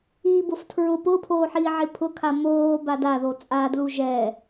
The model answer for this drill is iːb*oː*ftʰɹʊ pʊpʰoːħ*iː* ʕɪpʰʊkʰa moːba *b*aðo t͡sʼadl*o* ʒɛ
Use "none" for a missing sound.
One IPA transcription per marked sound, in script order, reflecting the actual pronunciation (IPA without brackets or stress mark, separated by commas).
o, iː, d, u